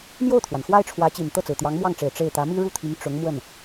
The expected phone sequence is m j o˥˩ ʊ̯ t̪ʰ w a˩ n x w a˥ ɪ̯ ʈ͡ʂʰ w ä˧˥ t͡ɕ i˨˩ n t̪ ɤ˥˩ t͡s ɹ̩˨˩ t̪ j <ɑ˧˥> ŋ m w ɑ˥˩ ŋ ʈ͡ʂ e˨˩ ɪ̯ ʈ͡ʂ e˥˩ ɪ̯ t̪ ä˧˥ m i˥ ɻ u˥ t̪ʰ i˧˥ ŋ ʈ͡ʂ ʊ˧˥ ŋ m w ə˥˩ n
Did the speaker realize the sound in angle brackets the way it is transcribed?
yes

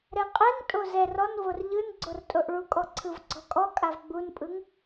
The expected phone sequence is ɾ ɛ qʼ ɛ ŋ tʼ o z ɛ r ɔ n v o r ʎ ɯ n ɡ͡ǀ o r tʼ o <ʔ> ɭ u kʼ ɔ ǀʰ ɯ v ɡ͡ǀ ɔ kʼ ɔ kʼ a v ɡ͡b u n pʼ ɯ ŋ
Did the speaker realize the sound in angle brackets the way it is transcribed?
yes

